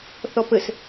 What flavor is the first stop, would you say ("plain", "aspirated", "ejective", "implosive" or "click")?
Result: plain